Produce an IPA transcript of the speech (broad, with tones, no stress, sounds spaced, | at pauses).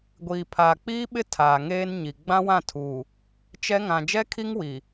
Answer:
ɡʷ iː˨ pʰ aː˨ k͡p iː˦ ɓ ɪ˦ tʰ aː˨ ŋ eː˦ n ɲ i˨ ɡ͡b ã˦ w ã˦˨ tʰ uː˨ | t͡ʃ ɛ˦ ŋ ã˨ d͡ʒ ɛ˦ kʰ i˦ ŋ w i˨